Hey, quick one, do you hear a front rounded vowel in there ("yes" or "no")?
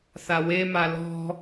no